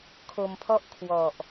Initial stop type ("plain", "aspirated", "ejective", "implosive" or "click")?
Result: aspirated